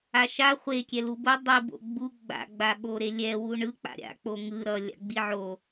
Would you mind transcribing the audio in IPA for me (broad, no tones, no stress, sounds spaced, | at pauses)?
a ʃ a χʷ e kʲ ɛ l u b o dˤ i b o̰ ɡ͡b u ɡ͡b a̰ ɡ͡b a ɓ o ɾ e lʲ ɛ w u ɳ ɯ k͡p a̰ ɾʲ a̰ k͡p o ŋ ɯ ɾ ʌ lʲ a̰ ɡ͡b i ʕ o